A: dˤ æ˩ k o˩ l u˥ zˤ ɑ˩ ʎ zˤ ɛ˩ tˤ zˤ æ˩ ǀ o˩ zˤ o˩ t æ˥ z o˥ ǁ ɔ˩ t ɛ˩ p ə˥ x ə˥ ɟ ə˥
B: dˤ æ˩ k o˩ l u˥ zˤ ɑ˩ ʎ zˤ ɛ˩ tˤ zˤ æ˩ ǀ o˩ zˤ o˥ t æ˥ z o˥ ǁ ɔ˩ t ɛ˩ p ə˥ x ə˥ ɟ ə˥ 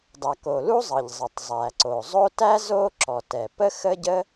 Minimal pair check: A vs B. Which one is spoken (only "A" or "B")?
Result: B